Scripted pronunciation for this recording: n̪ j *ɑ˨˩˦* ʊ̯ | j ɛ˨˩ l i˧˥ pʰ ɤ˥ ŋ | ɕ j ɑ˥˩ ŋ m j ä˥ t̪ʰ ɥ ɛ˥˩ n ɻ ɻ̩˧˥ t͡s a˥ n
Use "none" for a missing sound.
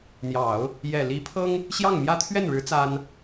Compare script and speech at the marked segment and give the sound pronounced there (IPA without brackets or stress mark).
ɑ˨˩˦